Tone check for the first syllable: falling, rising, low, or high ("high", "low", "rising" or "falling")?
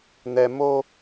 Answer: high